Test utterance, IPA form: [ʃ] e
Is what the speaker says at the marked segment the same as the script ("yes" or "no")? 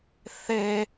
no